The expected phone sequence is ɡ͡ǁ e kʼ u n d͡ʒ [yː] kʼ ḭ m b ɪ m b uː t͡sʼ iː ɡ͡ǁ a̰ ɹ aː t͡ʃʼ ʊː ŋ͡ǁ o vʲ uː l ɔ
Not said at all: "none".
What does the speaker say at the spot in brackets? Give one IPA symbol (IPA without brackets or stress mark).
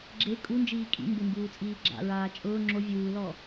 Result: iː